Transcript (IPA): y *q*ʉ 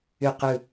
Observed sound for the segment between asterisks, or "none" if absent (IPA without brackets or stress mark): q